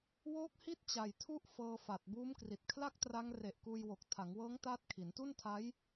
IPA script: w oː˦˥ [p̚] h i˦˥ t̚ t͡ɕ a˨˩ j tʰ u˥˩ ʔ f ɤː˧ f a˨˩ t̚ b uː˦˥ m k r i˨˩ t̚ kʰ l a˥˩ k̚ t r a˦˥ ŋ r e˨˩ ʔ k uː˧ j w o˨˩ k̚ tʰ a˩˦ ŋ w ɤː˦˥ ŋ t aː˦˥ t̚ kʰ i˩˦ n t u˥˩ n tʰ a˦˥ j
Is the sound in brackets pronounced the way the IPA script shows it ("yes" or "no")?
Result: no